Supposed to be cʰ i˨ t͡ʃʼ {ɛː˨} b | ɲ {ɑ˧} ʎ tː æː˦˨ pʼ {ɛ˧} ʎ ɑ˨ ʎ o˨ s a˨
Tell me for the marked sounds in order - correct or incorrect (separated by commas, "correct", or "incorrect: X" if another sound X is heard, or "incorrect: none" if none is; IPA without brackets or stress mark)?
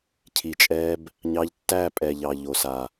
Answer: incorrect: ɛː˧, correct, incorrect: ɛ˨